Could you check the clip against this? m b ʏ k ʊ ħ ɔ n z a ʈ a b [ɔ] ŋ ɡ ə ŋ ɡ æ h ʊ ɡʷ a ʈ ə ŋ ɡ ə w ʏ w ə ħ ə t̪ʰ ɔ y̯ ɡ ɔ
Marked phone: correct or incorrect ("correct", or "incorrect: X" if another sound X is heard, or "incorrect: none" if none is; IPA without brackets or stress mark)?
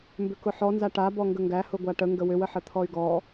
correct